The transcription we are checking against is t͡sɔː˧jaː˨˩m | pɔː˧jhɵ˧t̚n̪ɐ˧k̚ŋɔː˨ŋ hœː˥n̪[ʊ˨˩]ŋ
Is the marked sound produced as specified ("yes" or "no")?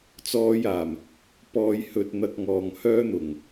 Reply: yes